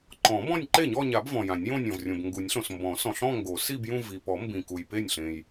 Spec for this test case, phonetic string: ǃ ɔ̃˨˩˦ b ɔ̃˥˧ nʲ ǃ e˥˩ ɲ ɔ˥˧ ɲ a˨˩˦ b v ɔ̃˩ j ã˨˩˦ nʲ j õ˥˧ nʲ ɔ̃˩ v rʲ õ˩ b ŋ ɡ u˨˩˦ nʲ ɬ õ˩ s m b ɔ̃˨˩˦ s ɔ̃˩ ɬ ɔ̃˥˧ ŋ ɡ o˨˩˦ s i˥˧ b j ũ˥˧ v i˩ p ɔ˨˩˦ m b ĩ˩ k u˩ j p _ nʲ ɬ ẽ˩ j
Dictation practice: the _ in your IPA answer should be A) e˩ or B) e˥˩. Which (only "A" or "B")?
B